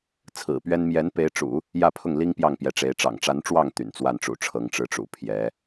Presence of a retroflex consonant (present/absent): present